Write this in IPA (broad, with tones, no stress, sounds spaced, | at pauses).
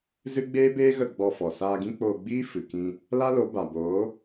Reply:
z ɨ˦ ɡ͡b eː˦ b eː˦ ɣ ə˦˨ ɡ͡b ɔ˧ f ɔ˨ s aː˧ ɡ ĩ˦ k͡p oː˧ ɡ͡b iː˦ f ɨ˨ k ĩ˧ | l a˦ l o˨˦ b a˨ b oː˨˦